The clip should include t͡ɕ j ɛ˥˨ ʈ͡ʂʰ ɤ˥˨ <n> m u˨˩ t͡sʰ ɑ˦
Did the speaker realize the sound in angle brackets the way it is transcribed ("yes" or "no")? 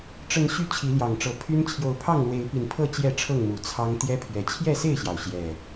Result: no